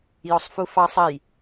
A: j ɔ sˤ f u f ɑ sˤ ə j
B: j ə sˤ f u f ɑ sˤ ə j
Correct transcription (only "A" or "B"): A